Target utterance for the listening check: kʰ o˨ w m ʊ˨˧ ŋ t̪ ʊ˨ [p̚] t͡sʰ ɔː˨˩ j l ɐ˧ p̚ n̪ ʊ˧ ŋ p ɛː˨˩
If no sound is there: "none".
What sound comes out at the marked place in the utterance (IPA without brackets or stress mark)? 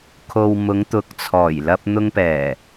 k̚